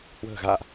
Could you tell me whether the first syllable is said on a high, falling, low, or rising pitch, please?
low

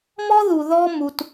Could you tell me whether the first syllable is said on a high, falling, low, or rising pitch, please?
high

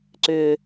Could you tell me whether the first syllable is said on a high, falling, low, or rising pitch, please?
low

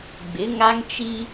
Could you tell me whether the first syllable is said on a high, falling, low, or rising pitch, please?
rising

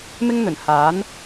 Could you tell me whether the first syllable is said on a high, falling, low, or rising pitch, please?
high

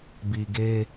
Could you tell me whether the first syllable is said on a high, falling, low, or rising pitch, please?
low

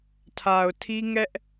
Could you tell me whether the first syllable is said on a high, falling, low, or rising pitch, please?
low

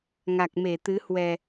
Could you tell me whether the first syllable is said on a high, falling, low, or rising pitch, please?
low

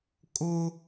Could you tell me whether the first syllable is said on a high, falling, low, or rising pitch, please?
high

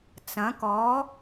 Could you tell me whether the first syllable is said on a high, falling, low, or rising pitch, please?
rising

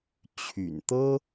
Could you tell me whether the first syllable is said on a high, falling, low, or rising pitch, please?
low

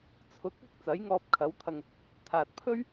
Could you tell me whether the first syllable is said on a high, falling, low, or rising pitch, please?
rising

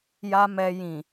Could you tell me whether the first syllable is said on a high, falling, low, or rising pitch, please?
low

